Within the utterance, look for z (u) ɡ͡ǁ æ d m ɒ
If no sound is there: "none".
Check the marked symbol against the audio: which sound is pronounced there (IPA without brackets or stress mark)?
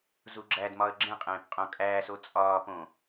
u